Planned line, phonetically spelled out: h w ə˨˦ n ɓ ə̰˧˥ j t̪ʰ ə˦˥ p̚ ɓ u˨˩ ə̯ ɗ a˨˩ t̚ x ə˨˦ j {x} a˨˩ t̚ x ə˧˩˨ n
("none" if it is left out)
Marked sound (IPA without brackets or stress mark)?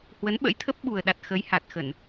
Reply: h